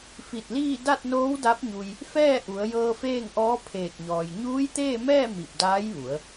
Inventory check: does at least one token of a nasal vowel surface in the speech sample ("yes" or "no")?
no